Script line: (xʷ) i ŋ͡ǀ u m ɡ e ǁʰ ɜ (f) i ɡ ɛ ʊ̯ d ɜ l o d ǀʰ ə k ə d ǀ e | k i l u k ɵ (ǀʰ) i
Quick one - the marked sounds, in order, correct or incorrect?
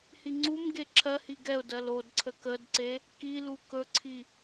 incorrect, incorrect, correct

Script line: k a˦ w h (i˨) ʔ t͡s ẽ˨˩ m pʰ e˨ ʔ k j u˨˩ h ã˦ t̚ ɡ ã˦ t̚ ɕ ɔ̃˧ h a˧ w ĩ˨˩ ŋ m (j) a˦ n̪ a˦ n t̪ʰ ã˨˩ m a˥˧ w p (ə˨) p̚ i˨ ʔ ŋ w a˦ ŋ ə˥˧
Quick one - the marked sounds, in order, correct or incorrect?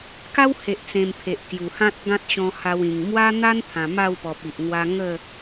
incorrect, incorrect, incorrect

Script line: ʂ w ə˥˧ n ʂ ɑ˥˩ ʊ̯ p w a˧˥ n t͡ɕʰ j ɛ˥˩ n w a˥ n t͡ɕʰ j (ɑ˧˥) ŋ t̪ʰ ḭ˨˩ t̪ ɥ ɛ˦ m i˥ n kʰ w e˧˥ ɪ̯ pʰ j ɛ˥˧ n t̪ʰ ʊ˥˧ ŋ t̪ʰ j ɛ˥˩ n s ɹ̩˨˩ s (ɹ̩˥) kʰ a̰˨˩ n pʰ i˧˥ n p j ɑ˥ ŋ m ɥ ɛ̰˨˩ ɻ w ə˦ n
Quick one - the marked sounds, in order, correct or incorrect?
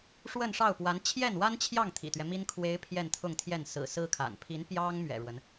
incorrect, correct

